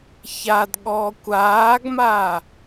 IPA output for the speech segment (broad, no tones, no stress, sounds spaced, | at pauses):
ç a d ɠ ɔː kʷ aː ɡ m aː